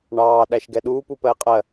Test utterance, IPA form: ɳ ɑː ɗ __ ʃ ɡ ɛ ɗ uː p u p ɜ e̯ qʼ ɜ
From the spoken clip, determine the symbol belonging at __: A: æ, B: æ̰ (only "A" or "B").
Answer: A